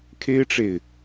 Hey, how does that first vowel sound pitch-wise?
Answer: high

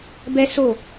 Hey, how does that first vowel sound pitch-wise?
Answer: high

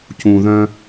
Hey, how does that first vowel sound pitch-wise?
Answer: low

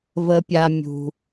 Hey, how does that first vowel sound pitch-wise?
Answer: high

